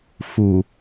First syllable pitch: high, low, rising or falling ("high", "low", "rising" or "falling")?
low